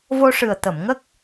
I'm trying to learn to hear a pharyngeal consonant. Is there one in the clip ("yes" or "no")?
no